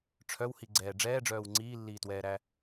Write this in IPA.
ʈ͡ʂʰ œ w h i ɡ͡ǀ ɛː ɖ͡ʐ ɛː ɖ͡ʐ œː w ŋ͡ǀ iː lː iː t w ɛː ɾ æ

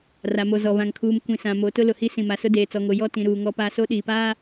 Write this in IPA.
r a˨ m o˨ z ɔ˨ β ã˨ ŋ kʰ uː˨ m kʷ ĩ˨ s ã˨ m o˨˦ t ʊ˦ l ʊ˨ h i˦ s ĩ˨ m a˨ s ʊ˦ d eː˨ t͡s ɔ˨ ŋ o˨ j ɔ˦ t ĩ˨ ɾ uː˨ ŋ ɔ˦ p aː˦ s o˦ ɗ iː˨ p aː˦

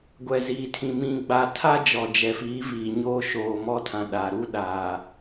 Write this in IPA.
ɡʷ ɛ˨ z iː˨ tʰ ĩ˨ m ĩ˨ ɡ͡b a˨ tʰ a˦ d͡ʒ ɔ˨ d͡ʒ ɛ˨ f iː˨˦ v iː˨ ɲ oː˦ ʃ oː˨ m ɔ˦ tʰ ã˨ ɗ a˨ ɾ u˦ ɗ aː˨

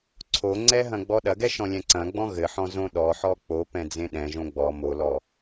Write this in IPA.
ǀʰ o ŋ͡ǀ ɛ ɦ ɐ̃ ɡ͡b ɔ ɗ ɐ ɡ ɛ ʃ ɔ̃ lʲ ɛ̃ ǀ ɐ̃ ɡ͡b ɔ̃ ɣ ɘ ħ ɔ̃ z õ ɗ ɔ ħ ɔ k͡p o p ɛ̃ d͡z ẽ ɗ ɛ̃ ʒ õ ɡ͡b ɔ m o l ɔ

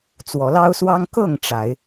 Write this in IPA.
t͡s w ɔ˨˦ l ɑ˦ ʊ̯ s w ɑ˦ ŋ k ɤ˥˨ ŋ ʈ͡ʂ a˨˦ ɪ̯

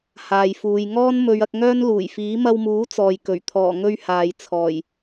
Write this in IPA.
h aː˨ j f uː˨˧ j ŋ ɔː˥ n m ɵ˨˧ ɥ ɐ˧ k̚ ŋ œː˥ n l uː˨˩ j f iː˨˥ m ɐ˧ w m uː˨˥ t͡s ɔː˨ j k ɵ˨˩ ɥ t̪ʰ ɔː˨˩ ŋ ɵ˧ ɥ h aː˨ j t͡sʰ ɔː˨˩ j

